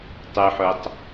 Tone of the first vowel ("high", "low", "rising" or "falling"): low